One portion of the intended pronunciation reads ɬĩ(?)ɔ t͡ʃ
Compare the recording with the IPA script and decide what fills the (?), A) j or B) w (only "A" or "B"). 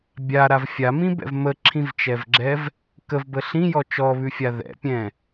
A